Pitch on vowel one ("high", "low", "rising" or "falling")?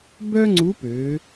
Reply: high